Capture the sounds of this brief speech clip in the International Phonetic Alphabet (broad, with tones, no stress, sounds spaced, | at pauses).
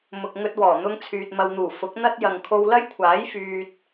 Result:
m ʊ˨ k̚ ŋ ɵ˧ t̚ w ɔː˨˩ n̪ ʊ˧ ŋ t͡sʰ yː˨ t̚ m ɐ˨ w n̪ uː˨˩ f ʊ˨˥ k̚ n̪ ɐ˥ t̚ j ɐ˨ ŋ kʰ o˧ w l ɐ˥ j kʷʰ aː˨˥ j f yː˧ t̚